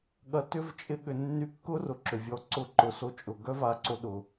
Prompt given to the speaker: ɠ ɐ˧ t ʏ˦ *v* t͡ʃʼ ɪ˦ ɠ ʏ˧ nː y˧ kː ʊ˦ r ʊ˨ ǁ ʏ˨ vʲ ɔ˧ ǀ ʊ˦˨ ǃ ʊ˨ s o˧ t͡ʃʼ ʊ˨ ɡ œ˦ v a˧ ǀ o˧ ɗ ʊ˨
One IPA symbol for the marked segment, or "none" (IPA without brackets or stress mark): v